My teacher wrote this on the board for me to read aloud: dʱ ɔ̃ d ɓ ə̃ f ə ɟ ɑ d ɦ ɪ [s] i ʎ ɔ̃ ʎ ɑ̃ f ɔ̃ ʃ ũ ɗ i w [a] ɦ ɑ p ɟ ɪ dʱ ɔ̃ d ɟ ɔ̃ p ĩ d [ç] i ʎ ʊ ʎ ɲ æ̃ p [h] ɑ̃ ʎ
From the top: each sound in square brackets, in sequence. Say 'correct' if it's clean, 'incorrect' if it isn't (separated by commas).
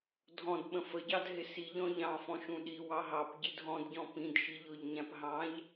correct, incorrect, incorrect, incorrect